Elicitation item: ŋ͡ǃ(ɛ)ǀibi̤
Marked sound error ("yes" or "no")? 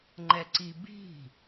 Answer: no